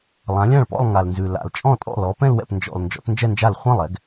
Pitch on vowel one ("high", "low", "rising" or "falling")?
rising